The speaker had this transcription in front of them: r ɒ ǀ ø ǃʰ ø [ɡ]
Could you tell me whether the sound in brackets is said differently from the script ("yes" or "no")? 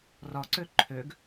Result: no